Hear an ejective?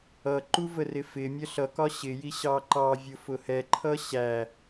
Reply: no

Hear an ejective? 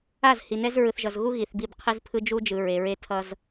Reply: no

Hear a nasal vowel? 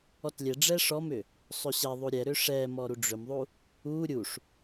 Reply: no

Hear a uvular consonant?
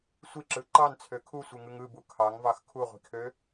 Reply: yes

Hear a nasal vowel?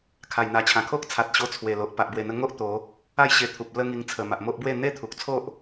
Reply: yes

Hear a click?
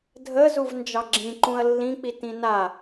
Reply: yes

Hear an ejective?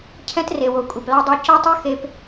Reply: yes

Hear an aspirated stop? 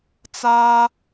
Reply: no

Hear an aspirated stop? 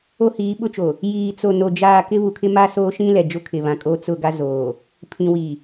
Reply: yes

